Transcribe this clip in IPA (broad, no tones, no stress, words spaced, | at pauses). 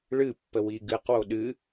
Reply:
ɭɨpːə wiɡɨqwo ɗɨ